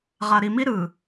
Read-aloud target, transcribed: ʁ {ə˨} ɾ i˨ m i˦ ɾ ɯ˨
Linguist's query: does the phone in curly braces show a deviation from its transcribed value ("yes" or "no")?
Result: yes